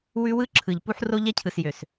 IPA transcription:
w ʉ˦ w ɯ˦ ǁʰ ɯ˨ ʎ p u˦ ħ r o˦ ʎ ɛ˦ cʰ ɯ˨ s j ø˨ s

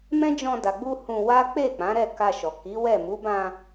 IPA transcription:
m ɛ̃˦ d͡ʒ ɔ̃˧ d a˨ ɡ͡b u˧ h ũ˧ w a˦ k͡p e˦˨ k͡p ã˨˦ ɾ ɛ˦˨ k a˧ ʃ ɔ˨ k i˨˦ w ɛ˦˨ m u˨˦ b ã˧

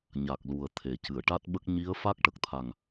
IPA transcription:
ɲ a˨˩ k̚ l u˨˩ ə̯ t̪ʰ e˨˩ c ɨ˨˩˨ ə̯ ʈ a˦˥ t̚ ɓ ə˦˥ k̚ ɲ i˧˥ ə̯ f a˦˥ k̚ ʈ ə˨˩ k̚ t̪ʰ a˨˩ ŋ

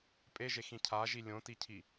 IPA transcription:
pʼ e ʒ e x ĩ cʰ a ʒ i lʲ õ t i cʰ i

